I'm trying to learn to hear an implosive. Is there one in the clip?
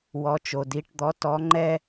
no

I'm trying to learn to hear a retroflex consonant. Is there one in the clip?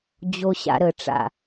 yes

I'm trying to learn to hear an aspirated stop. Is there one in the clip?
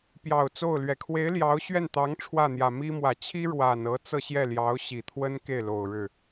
yes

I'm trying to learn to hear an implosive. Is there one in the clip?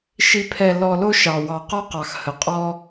no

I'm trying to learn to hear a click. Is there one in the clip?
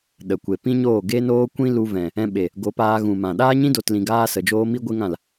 no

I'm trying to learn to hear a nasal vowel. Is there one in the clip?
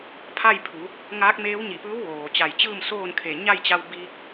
no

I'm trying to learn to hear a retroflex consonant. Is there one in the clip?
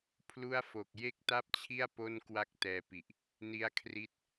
no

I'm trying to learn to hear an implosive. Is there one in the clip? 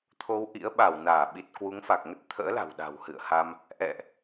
yes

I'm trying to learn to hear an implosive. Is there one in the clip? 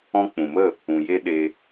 yes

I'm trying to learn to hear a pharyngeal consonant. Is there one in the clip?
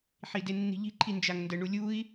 yes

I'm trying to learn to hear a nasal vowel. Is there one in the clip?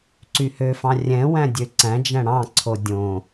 yes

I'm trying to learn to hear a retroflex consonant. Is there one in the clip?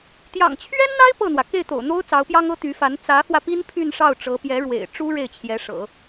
yes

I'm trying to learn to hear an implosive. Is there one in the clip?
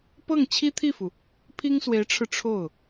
no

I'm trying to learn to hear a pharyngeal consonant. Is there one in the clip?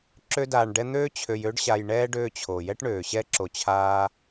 no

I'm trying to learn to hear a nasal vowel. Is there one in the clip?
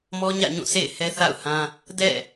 yes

